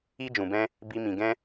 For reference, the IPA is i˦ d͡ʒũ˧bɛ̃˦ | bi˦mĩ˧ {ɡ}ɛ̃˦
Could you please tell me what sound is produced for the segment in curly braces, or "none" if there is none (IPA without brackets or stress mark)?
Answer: ɡ